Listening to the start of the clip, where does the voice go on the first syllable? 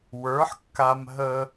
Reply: rising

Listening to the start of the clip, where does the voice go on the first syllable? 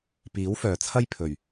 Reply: rising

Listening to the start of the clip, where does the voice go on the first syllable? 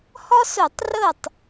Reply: high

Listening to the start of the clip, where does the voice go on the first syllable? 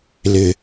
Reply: low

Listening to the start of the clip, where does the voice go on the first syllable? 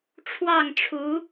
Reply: falling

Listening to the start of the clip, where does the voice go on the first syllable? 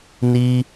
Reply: high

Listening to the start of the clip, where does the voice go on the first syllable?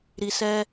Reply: low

